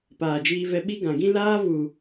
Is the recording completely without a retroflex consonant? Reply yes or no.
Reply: yes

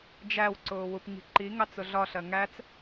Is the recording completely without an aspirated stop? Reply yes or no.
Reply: yes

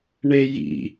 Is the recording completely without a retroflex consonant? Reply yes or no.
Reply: no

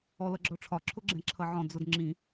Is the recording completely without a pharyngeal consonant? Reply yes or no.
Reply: no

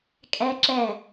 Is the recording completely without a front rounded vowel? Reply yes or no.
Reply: yes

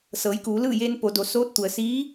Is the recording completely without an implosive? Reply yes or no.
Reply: yes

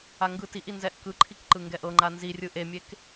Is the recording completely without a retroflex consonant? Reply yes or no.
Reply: yes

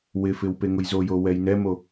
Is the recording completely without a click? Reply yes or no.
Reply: yes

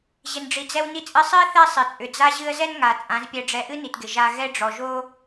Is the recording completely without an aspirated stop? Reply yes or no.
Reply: yes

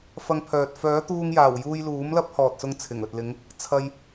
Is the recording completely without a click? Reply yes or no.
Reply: yes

